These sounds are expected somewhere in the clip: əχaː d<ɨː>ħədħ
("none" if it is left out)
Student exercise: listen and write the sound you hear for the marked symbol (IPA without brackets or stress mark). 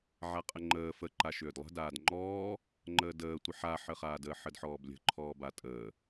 əː